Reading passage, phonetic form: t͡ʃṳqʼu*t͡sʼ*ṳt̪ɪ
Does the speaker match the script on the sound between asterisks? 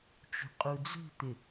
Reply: no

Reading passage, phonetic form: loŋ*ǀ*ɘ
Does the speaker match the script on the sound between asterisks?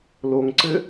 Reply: yes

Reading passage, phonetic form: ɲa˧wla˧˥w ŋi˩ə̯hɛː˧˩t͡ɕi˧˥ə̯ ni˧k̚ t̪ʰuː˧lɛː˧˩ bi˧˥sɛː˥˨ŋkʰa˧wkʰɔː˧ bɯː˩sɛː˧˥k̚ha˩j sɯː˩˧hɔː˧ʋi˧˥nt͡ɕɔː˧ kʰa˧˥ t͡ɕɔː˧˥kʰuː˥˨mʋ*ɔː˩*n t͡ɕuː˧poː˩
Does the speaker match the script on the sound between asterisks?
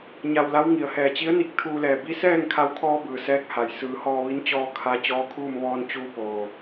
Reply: no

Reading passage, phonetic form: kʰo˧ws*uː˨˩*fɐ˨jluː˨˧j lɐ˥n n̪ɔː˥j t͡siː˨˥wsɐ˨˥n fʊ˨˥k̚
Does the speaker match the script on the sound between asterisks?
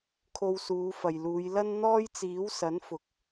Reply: no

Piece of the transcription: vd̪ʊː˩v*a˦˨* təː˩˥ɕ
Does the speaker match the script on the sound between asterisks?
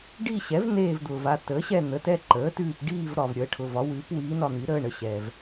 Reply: yes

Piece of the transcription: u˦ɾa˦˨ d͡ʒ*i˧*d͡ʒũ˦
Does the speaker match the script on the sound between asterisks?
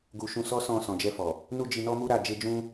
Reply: no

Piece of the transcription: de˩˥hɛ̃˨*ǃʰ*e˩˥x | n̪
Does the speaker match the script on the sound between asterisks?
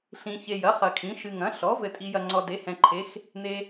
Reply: yes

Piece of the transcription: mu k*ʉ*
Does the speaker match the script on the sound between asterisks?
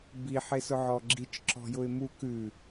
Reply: yes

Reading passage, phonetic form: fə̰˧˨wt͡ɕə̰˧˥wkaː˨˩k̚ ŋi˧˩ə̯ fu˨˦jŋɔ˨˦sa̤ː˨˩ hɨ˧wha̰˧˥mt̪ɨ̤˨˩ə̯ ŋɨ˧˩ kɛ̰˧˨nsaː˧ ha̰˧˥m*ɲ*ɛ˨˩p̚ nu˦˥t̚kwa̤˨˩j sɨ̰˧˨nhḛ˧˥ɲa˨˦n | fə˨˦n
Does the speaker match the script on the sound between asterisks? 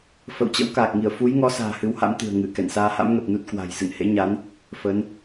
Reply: no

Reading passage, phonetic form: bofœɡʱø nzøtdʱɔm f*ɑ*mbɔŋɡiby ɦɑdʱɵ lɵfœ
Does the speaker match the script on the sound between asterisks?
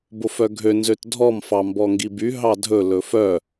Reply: yes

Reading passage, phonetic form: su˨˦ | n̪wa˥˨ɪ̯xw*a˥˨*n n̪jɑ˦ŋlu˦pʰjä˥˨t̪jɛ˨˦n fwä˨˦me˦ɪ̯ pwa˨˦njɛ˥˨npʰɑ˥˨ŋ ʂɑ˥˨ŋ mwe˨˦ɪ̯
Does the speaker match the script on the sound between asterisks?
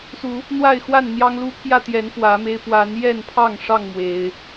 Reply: yes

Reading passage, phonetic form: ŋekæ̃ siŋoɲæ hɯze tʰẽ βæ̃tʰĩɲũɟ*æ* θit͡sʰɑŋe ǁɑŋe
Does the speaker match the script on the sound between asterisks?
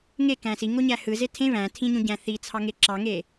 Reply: no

